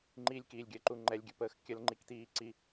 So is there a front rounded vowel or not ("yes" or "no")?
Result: no